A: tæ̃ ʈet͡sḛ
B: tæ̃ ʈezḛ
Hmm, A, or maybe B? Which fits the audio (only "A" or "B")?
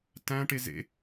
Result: B